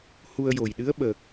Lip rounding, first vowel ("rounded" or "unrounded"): rounded